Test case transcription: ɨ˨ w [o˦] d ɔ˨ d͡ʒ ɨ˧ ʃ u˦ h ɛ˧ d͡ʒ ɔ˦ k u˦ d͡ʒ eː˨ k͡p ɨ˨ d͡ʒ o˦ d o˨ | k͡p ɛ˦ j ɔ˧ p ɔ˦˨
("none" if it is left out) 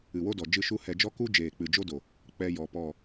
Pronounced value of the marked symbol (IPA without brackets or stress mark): o˦